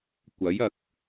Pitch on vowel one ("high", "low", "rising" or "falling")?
rising